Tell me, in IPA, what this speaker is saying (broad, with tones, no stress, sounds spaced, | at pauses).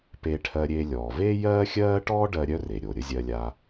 p eː˧ ʈʰ ɜ˧ ɾʲ eː˧ lʲ ɔː˩ v eː˥ j ɜː˥ xʲ ɜː˥ ʈ ɔː˥ ɖ ɜ˧ ɾʲ œ˥ r e˩ ɾʲ o˩ ɾʲ ə˥ zʲ ɜ˧ lʲ a˧